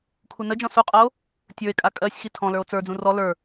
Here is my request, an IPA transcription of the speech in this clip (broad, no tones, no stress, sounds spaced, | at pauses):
kʰ u n ə d͡ʒ ɔ̃ s u qʼ ʌ o̯ | tʲ ə˞ e̯ kʼ a kʼ ɜ sʲ x i tʰ ɔ̃ l ə˞ o̯ t͡s ə˞ d͡z ũ r ɔ l ə˞